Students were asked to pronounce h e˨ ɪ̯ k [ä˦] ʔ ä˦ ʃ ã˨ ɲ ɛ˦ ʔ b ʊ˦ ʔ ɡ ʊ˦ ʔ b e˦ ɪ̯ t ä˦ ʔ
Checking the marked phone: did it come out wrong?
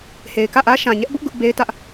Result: yes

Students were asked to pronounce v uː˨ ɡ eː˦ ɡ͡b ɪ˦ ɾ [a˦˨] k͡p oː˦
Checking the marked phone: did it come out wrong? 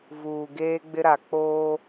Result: yes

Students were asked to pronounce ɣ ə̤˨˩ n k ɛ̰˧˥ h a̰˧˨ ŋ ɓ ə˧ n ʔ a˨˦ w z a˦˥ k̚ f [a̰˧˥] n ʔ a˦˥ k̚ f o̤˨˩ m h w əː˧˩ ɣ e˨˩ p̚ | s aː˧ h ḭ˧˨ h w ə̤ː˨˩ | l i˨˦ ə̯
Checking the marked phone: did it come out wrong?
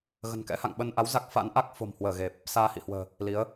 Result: no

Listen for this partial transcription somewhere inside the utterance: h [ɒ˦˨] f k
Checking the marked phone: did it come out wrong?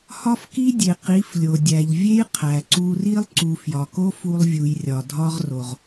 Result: yes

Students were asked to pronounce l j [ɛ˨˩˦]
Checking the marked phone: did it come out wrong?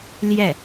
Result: yes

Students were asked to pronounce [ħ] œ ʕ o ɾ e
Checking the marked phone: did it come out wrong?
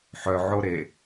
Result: no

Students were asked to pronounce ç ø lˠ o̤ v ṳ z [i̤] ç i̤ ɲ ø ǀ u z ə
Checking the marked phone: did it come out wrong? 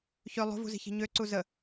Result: no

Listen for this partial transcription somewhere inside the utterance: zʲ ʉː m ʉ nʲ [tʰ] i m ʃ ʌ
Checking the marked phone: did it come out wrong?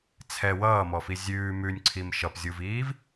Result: yes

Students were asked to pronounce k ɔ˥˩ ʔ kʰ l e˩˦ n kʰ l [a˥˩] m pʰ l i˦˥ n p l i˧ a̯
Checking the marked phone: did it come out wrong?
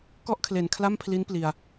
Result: no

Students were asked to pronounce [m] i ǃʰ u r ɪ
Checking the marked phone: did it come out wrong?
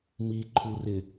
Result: no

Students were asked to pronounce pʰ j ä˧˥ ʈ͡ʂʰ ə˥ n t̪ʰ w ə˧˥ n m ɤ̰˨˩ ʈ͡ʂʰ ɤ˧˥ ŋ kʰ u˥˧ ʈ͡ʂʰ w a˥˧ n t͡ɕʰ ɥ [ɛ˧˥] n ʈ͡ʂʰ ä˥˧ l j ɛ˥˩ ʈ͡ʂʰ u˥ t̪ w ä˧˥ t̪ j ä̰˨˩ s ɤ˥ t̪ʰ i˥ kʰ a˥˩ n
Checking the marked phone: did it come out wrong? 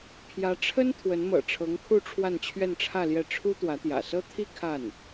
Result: yes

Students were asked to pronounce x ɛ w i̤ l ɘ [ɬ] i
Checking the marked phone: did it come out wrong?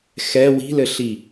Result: no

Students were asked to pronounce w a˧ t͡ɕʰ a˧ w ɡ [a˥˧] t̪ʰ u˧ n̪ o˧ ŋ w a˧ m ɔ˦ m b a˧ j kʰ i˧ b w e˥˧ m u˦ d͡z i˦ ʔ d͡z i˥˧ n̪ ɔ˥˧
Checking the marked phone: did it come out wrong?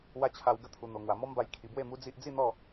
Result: yes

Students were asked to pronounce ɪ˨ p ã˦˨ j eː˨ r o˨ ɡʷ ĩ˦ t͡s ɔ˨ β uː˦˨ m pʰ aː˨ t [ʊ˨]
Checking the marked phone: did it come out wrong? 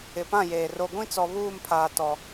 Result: yes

